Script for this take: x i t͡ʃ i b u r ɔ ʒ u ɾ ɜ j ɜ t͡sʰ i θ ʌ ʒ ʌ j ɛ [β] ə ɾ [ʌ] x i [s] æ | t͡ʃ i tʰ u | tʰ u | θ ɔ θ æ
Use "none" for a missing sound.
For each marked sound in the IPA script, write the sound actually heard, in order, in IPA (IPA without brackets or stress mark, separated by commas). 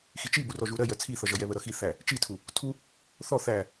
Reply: β, ʌ, θ